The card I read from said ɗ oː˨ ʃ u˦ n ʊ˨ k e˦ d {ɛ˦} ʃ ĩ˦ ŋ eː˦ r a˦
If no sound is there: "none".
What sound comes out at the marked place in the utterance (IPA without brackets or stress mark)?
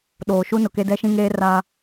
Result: ɛ˦